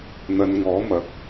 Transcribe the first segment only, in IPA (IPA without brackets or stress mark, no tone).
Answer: n̪